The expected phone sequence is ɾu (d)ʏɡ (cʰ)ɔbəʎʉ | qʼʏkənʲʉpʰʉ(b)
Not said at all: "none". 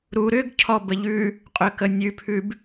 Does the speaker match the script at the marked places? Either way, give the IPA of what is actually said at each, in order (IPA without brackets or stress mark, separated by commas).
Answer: ɾ, cʰ, b